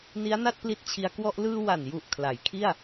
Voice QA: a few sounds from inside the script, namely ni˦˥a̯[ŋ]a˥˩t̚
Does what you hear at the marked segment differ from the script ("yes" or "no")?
yes